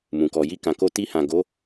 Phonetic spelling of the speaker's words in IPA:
m ũ˨ k ɔ˨ j i˧ k ã˨ k o˧ t i˧ h ã˨ ɡ o˨˦

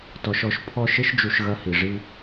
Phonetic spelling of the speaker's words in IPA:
t ɔ˨ ʃ ɔ˨ ʃ pʰ ɔ˦ ʃ ɘ˦ ʃ d͡ʒ u˨ ʃ ɣ ɐ˦ h i˨ ʐ i˦

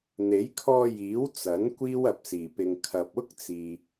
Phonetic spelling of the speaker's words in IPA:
n̪ e˨˥ j kʰ ɔː˧ j iː˨˥ w t͡s ɐ˨˥ n kʷ iː˥ w ɐ˨ p̚ s iː˨˩ p ɪ˨ ŋ kʰ ɐ˨ p̚ ʊ˥ k̚ t͡s iː˨

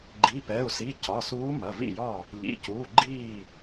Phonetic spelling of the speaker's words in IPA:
ɡ͡ǃ i˩˧˩ p ɛ˩˧˩ u̯ s i˩˧˩ c ɒ˩˧˩ s uː˧˥ m ɐ˩˧˩ v ḭ˥˩ j ɒ˥˩ | ʎ ḭ˩˧˩ c uː˩˧˩ ɡ͡ǃ iː˥˩

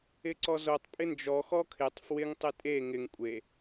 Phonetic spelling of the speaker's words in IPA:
ɪ ǀ ɔ z o tˤ pʼ ɪ n d͡ʒ ɔ x ɔ kʰ ɪ tˤ f w ɪ ŋ tˤ ɪ tʼ e ŋ ɪ ŋ kʷʼ e

